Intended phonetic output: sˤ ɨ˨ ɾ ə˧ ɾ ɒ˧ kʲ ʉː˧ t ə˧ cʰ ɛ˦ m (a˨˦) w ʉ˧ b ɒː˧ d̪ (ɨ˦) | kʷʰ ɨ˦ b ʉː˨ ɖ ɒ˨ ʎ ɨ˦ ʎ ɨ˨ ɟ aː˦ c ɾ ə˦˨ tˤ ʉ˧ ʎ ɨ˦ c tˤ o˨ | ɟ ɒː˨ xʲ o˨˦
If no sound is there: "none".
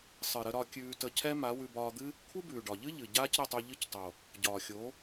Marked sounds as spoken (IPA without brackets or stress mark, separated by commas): a˨˦, ɨ˦